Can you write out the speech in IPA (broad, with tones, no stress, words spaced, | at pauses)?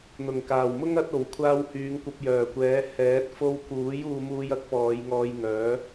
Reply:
n̪ʊ˨˩ŋkaː˨˩wmʊ˥ŋ ɐ˨˥t̚o˨˩w kʷʰaː˧whyː˨˧ŋ kʷɐ˧p̚jœː˨˩kʷɛː˨˥ hɛː˨˥t̚ fo˧wkuː˨˥j uː˧muː˧jɐ˥k̚ pɔː˨˧jŋɔː˧j ŋœː˨˥